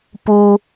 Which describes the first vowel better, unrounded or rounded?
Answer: rounded